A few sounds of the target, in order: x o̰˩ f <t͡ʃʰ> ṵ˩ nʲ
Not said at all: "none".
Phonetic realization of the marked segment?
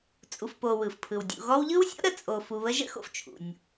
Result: t͡ʃʰ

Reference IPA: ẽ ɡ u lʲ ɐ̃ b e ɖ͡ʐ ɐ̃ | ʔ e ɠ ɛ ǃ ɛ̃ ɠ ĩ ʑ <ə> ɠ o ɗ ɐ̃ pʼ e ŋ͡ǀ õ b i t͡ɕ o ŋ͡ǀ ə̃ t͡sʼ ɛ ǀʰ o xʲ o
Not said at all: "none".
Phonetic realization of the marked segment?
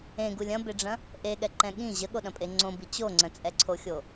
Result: ə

